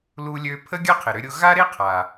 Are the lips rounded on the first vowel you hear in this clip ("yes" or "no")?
yes